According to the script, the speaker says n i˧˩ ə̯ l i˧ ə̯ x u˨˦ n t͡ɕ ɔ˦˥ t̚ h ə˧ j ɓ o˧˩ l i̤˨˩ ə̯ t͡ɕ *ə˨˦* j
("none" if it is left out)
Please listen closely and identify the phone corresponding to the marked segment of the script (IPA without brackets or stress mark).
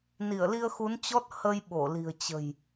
ə̤˨˩